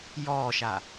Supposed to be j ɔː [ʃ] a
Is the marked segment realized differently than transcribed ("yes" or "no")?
no